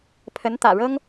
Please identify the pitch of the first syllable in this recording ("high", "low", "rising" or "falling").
rising